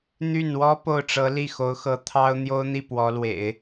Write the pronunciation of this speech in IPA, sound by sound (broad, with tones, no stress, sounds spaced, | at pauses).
n̪ y˥˩ n w ɔ˥ p o˥˩ ʊ̯ ʈ͡ʂ ɤ˧˥ l i˥˩ x o˧˥ ʊ̯ x ɤ˧˥ t̪ʰ ɑ˥ ʊ̯ n̪ j o˥ ʊ̯ n̪ i˥˩ p w ɔ˧˥ l w ḛ˨˩˦ ɪ̯